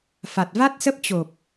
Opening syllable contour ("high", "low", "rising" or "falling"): low